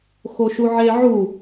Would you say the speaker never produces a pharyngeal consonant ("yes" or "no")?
no